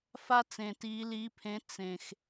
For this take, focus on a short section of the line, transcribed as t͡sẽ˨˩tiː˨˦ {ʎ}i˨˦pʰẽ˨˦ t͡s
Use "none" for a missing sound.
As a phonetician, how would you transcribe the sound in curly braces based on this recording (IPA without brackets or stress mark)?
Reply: l